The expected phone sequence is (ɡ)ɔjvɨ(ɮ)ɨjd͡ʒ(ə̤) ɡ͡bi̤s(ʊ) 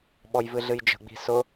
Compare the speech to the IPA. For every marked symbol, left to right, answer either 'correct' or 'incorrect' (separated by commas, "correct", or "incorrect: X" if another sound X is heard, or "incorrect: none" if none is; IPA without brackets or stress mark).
incorrect: ɓ, correct, correct, correct